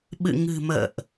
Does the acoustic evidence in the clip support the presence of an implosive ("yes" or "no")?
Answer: yes